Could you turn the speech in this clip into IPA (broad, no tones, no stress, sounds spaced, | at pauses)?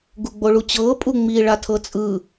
ɡ u ɡ͡b o ɭ u t͡ɕ ɤː pʼ u ŋ͡m i ɭ a tʰ ɤ t͡sʼ ɯ